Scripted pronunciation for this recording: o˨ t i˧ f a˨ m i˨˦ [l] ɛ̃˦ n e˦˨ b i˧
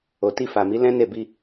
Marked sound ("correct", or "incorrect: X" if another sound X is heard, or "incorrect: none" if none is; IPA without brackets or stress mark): correct